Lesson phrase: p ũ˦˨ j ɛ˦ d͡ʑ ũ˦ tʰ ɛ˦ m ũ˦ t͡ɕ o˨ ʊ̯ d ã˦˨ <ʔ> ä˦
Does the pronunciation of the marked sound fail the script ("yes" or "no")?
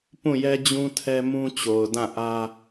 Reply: no